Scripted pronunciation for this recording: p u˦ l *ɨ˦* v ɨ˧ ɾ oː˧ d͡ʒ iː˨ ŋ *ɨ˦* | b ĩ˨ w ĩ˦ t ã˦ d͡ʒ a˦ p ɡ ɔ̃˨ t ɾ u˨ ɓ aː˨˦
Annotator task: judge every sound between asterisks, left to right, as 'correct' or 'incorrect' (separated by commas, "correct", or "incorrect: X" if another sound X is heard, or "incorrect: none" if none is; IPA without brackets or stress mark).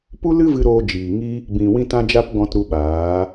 correct, incorrect: i˦